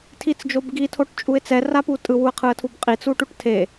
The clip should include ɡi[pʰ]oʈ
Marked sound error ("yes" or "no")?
yes